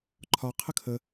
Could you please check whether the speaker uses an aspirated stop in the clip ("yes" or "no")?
yes